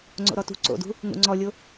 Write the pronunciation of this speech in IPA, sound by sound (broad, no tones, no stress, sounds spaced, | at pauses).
ŋ͡ǀ o̰ ɾ ɔ t ṳ ǀ o̰ d ṳ | ŋ ṵ ŋ͡ǀ ɔ lʲ o